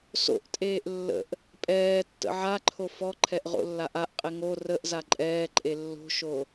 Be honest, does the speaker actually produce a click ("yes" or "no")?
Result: yes